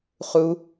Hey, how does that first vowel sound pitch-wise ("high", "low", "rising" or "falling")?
high